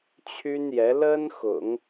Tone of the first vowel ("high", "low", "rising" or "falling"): high